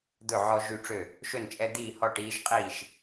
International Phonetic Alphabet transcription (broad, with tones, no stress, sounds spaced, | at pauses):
d̪ ɵ˥˨ ʕ ɔ˦ ʒ y˥˨ ʈ͡ʂ ø˥˨ | ʃ ɵ˥˨ n t͡ʃʼ ɛ˦ d̪ iː˥˨ h ɔ˥˨ ʈ iː˦ ʃ qʼ iː˥˨ ʃ